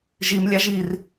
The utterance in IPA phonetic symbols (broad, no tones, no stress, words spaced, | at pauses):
ʒim lʲɑʒir